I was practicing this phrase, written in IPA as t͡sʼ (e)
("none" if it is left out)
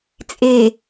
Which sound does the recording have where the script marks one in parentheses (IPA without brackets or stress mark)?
e